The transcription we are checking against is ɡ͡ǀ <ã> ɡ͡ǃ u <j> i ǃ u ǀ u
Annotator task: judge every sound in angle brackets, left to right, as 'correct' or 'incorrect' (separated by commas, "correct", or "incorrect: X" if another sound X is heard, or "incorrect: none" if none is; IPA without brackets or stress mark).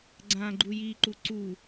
correct, correct